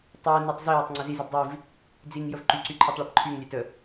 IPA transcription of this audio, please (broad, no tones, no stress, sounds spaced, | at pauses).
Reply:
tˤ ɛ n ɛ tˤ z i j ə tˤ ŋ͡ǀ ə z i z i b dˤ i v | d͡z i ŋ j ə v ǃ y ǀ y ǃʰ ɛ tˤ ɭ ɛ p ǃʰ y ŋ lʲ ɛ t ə